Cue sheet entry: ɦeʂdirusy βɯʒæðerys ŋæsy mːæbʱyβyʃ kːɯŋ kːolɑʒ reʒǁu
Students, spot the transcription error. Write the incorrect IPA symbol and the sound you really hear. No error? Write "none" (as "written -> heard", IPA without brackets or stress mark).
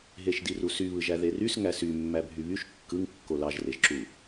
ʂ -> ʃ